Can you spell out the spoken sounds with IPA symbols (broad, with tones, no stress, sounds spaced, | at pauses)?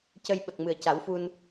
c ə˧ j ɓ ə˨˩ k̚ m ɨ˨˩ ə̯ c a˨˩˦ w f u˧ n